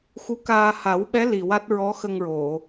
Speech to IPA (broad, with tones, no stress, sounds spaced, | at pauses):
x u˧˥ k aː˧ h a˨˩˦ w ɓ ɛ˧˥ l i˨˩ w a˦˥ t̚ ɹ ɔ˧˥ x ə˧ ŋ ɹ o˨˩˨